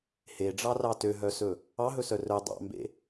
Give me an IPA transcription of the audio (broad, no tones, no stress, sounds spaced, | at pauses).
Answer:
h e ɖ͡ʐ ɑ r ɑ t ø ɦ œ s ɵ | ɑ ɦ ɵ s œ r œ dˤ ɑ̰ m b ḛ